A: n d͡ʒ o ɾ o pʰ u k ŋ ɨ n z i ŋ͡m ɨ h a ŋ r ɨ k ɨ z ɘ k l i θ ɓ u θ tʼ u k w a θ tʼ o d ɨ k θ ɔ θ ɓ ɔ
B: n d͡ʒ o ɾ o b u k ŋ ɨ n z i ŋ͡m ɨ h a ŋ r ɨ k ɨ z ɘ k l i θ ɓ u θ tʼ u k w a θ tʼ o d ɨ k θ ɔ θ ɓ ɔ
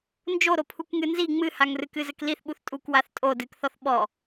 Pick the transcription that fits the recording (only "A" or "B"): A